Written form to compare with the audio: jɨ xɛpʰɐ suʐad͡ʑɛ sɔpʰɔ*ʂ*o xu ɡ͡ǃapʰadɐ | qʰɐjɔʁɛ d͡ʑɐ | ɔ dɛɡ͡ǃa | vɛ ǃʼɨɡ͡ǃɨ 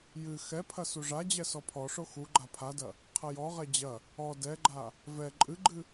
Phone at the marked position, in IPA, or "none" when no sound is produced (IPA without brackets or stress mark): ʂ